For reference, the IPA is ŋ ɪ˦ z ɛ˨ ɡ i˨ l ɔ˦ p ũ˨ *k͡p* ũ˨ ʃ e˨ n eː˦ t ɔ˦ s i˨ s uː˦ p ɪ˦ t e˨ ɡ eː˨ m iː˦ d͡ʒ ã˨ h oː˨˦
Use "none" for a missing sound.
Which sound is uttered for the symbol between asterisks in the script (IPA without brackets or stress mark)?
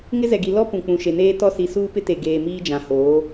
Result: k͡p